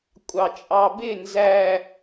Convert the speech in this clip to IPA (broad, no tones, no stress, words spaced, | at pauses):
kʷʼɑt͡ʃʼɑbɪ nzæ